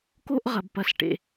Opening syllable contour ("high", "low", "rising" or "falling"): high